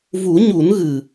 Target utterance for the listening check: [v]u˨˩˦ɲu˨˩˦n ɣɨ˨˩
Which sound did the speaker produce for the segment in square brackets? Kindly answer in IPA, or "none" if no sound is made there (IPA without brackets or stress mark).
v